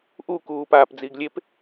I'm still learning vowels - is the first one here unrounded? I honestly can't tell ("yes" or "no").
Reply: no